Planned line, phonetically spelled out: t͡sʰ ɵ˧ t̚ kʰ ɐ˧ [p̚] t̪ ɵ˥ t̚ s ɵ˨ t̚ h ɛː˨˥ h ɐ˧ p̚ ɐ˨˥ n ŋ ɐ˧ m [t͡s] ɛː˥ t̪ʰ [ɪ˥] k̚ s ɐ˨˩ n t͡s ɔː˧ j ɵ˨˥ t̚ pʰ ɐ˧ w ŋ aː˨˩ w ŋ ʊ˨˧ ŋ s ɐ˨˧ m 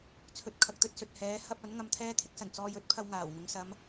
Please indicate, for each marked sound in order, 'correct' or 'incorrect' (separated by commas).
incorrect, incorrect, correct